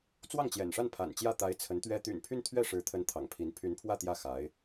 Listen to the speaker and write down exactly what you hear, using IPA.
t͡s w ɑ˥˩ ŋ t͡ɕ j ɛ̰˨˩ n ʂ a˥˩ n pʰ a̰˨˩ n t͡ɕ j ä˥˩ t̪ a˧˥ ɪ̯ t͡sʰ ə˧˥ n t̪ ɥ ɛ˥ t̪ y̰˨˩ n pʰ y˥˧ n t̪ʰ ɥ ɛ˥˩ ʂ ɻ̩˧˥ t̪ʰ ə˧˥ n t̪ʰ ɑ̰˨˩ ŋ pʰ i˧˥ n pʰ y˧˥ n pʰ w ä˥˧ t̪ j ä˥˩ x a˧˥ ɪ̯

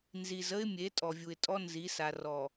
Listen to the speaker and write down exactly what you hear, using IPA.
n z i˨ z ə˦ ɪ̯ mʲ e˨˦ tʼ ɔ˨ vʲ u˨ ɪ̯ tʼ ɔ˦ n z i˨˦ s a˨ r ɔ˨

